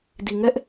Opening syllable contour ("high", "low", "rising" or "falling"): low